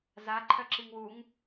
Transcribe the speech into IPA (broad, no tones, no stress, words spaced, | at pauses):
za ǃʰœǁiŋwuŋ